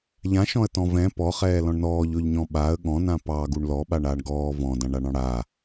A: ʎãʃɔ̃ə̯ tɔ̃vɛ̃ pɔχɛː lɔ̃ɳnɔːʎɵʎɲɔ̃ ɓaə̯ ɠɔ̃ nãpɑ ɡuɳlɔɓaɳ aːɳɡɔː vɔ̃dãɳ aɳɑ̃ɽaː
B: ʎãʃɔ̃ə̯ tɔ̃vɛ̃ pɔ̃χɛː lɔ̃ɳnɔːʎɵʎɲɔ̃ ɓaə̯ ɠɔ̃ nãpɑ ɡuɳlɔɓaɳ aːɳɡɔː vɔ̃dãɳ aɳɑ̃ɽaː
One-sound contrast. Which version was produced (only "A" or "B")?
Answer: A